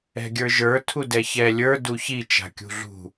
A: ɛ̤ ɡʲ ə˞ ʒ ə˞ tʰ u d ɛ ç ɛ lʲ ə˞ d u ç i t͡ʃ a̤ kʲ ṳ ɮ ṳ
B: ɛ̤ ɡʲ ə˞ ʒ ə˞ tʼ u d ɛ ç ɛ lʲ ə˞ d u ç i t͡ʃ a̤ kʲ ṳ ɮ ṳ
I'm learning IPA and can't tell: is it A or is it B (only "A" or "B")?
A